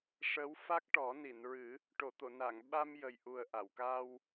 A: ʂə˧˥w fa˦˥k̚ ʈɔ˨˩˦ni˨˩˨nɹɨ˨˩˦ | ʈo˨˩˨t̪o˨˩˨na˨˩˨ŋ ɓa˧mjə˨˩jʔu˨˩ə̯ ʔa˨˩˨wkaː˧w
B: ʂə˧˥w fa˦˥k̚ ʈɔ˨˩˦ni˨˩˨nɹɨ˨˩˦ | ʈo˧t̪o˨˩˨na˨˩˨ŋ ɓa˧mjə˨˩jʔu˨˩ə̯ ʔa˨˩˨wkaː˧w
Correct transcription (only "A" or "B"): A